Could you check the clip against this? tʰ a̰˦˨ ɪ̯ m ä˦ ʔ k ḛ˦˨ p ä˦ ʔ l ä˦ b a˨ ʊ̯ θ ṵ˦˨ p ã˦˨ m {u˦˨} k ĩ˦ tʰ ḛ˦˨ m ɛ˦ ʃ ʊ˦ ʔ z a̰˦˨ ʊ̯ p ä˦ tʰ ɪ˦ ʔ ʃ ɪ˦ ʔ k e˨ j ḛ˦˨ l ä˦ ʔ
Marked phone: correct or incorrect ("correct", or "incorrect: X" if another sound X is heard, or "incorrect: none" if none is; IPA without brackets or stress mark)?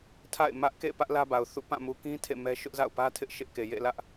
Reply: incorrect: u˨